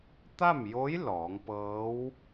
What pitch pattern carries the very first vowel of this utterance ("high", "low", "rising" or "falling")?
falling